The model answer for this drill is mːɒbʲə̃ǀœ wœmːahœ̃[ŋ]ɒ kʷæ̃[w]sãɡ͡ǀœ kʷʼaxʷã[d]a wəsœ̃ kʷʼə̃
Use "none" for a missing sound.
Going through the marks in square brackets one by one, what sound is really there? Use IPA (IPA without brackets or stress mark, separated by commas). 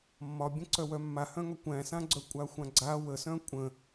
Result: ŋ, none, ɡ͡ǀ